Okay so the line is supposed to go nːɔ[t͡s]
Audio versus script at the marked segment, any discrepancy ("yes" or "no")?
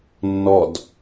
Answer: yes